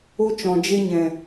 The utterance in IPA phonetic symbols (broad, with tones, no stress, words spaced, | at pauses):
o˧t͡ʃɔ̃˨ d͡ʒe˧ɲɛ̃˨